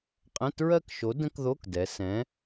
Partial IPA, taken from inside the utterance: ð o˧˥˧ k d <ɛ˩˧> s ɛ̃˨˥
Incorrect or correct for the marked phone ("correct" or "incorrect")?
correct